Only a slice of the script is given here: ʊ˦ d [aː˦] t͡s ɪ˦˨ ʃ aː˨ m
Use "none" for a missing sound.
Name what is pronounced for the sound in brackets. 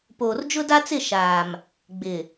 a˦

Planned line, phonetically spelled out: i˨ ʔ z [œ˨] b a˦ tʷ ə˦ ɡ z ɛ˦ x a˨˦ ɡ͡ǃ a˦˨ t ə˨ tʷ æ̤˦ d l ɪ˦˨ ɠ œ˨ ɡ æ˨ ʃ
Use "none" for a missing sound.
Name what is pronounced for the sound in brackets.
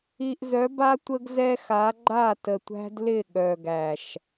œ˨˦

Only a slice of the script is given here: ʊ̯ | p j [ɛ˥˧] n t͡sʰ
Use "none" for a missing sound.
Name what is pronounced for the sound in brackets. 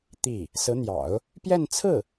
ɛ˥˧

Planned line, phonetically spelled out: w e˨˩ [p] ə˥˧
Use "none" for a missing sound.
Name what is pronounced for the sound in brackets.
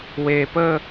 p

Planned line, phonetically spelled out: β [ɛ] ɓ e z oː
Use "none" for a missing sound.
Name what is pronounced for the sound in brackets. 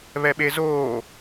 ɛ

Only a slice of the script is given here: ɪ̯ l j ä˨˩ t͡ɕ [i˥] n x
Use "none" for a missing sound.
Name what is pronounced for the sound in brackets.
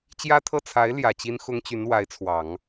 i˥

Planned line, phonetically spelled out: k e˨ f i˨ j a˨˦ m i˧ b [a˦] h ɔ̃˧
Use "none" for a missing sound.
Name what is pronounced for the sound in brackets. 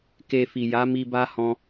a˦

